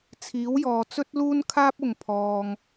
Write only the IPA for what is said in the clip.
t͡sʰ iː˨˥ w j ɔː˨ t͡s ɵ˥ t̚ l uː˥ n kʰ aː˥ p̚ ʊ˨ ŋ pʰ ɔː˨ ŋ

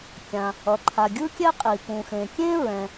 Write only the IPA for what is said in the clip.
kʲ ã˩ | ʌ˩ ǃʰ a˩ ɡʲ ɯ˥ kʲ ɛ˥ qʼ i˩ p ũ˩ x ẽ˩ kʲ ẽ˥ ɹ ɛ̃˩

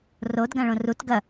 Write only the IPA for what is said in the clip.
r o d ɡ ã ɭ õ r u t ɡ ɐ

